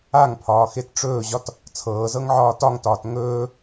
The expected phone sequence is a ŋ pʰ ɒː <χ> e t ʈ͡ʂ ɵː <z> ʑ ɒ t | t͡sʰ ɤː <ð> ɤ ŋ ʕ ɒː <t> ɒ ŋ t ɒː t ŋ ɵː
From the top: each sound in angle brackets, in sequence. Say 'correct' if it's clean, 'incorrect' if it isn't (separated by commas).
incorrect, incorrect, incorrect, correct